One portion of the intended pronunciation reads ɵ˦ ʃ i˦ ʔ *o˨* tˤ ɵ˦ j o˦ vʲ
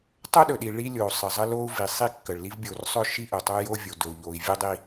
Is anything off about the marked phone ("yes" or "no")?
yes